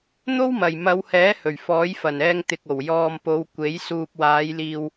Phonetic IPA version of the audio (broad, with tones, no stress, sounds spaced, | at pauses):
n̪ o˥ w m ɐ˨˩ j m ɐ˨˧ w h ɛː˨˥ h ɵ˨˩ ɥ f ɔː˨˥ j f ɐ˨˩ n ɛː˧ ŋ t̪ ɪ˨ k̚ o˨˩ w j ɔː˨ m p o˨˧ w kʷ e˨˥ j s uː˨ p̚ w aː˨˧ j l iː˨ w